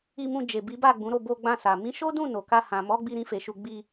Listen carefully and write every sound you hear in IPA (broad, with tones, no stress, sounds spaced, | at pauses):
i˧ m ũ˧ d͡ʒ e˨ b i˨˦ b a˦˨ ɡ͡b ũ˨˦ ɾ o˦˨ b o˧ ɡ͡b ã˧ s a˨ m ĩ˨˦ ʃ o˦ d ũ˦˨ n o˨ k a˧ h ã˨ m ɔ˨˦ ɡ͡b i˧ ɾ ĩ˧ f e˨ ʃ u˧ ɡ͡b i˧